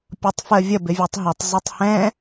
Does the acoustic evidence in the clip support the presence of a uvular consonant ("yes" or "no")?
no